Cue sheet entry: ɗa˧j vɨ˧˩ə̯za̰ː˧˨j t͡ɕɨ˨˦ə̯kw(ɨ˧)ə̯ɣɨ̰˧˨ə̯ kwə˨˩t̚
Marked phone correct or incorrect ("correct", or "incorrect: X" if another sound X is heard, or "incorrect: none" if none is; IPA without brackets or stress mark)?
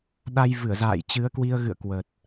incorrect: i˧